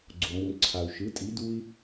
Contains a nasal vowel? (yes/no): no